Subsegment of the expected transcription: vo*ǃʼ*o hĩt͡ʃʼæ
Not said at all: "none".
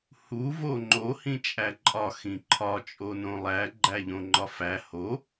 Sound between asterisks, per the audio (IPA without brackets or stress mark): ŋ͡ǃ